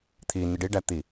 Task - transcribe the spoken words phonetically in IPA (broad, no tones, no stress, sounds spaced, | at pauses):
t̪ʰ i n i ɖ i ɖ æ t̪ i